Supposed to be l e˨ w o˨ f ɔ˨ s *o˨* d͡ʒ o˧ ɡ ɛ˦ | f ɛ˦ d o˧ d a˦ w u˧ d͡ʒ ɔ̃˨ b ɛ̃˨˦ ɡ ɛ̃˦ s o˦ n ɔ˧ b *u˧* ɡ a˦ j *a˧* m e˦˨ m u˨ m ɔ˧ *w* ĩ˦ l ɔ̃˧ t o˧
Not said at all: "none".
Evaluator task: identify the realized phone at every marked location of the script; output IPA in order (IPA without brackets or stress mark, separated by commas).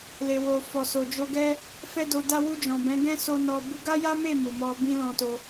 o˨, u˧, a˦, b